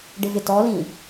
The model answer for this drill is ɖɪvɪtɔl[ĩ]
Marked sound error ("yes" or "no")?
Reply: no